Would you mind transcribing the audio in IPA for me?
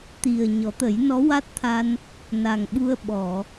t̪ i˨˩ ə̯ ɲ ɔ˨˩˦ t̪ ə˨˩˦ j n ɔ˧˥ w a˦˥ t̚ t̪ʰ a˧ n | n a˨˩ ŋ ɓ u˧ ə̯ ɓ ɔ˨˩˨

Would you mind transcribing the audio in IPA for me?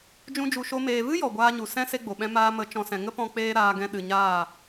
d͡ʒ ũ˦ d͡ʒ u˧ ʃ o˦ m eː˧ v ɨ˦ j ɔ˨ ɡʷ aː˦ ɲ u˨ s ɛ̃˦ s e˦ ɡ͡b o˨ ɓ ɛ̃˦ m aː˧ m ə˨˦ t͡ʃ ɔ̃˨ s ɛ̃˨ ŋ ə˦ p ɔ̃˧ k͡p eː˧ ɾ aː˧ ɡ ɛ̃˧ ɗ ɨ˨ ɲ aː˦˨

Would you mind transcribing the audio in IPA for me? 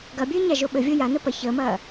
ɡ ɐ bʲ ɘː ɲ a ʒ o ɓ ɘ vʲ o j a n ə p ɐ ç əː m ɐː

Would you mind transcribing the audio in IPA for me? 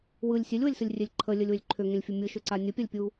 w ɯ lʲ sʲ e lʲ w ə lʲ s ɯ lʲ rʲ e lʲ ǃʰ ə lʲ ə lʲ w ʏ lʲ ǃʰ ʏ ŋ ẽ lʲ fʲ ə mʲ ɯ ʃ ʏ ǀ a nʲ ə pʲ a lʲ pʲ u

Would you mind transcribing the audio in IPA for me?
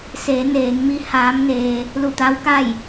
s e˩˧ n eː˩˧ ŋ m i˧˥ h aː˧˥ m n eː˧ | l u˧˩ t̪ aː˧˥ w k a˥˨ j

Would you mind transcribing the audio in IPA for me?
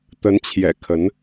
t̪ ə˧˥ n t͡ɕʰ j ɛ̰˨˩ kʰ ə˧˥ n

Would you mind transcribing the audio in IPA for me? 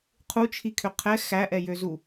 qʰ u t͡ʃʰ i kʰ ø qʰ ɛ x æ ʔ ɛ j ø z u

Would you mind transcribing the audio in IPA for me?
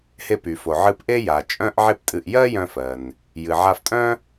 h e˧ p y˩ f o˩ ʕ ɨ˧ p ʔ e˥ j a˩ t͡ʃʼ œ̃˥ ʔ ʕ e˥ p tʼ ɨ˧ ʔ j ɜ˥ j œ̃˧ f ɜ˩ n | j ɨ˩ ʕ a˧ f tʼ œ̃˥

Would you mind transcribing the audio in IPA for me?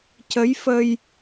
c ə˧˥ j f ə˧ j

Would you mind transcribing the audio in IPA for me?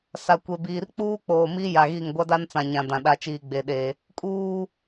s a˨ kʷ e˨ b iː˨ r k͡p uː˦ k͡p oː˨ m i˦ j a˨ ɣ i˦˨ ŋ ɡʷ a˦ d a˦ n t͡s ã˨ ɲ ã˨ d ã˨ ɗ a˨ t͡ʃ iː˨ ɡ͡b e˨ ɗ e˨ | kʼ uː˨

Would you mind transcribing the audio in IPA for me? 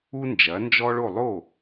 u˥ n d͡ʒ ɐ˩˥ n d͡ʒ ɔ˥ ɭ o˥˩ lˠ o˥˩

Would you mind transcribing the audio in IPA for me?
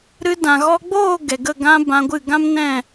ɾ ɨ˧ d ã˨ ɣ ɔ˧ ɡ͡b oː˦˨ ɡ ɛ˨ ɡ ə˦˨ ɡ ã˧ b ã˧ ɡʷ ɨ˦˨ ɡ ã˦ m n ɛ̃˦˨

